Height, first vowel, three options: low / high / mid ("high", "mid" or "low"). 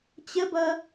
mid